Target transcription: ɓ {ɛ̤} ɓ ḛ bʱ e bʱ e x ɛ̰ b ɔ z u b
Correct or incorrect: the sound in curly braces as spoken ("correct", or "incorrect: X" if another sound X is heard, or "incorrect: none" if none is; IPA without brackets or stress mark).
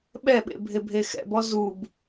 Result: incorrect: ɛ